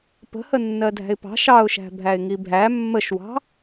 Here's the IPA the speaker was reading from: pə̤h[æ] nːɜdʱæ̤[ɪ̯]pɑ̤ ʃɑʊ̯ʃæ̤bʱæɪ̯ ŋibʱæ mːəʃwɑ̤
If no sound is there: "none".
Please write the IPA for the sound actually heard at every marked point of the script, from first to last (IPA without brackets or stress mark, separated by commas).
ə, ɪ̯